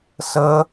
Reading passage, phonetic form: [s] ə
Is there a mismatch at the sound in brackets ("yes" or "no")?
no